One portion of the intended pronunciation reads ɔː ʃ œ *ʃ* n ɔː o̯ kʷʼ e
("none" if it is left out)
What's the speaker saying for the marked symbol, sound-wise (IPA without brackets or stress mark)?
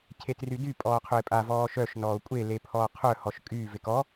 ʃ